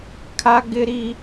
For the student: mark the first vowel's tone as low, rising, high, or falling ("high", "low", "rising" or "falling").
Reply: high